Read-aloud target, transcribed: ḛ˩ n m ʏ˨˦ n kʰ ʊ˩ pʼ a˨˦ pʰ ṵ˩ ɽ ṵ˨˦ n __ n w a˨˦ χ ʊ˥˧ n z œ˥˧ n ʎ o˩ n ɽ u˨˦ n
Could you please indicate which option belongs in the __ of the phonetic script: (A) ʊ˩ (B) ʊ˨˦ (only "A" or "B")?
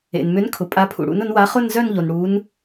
B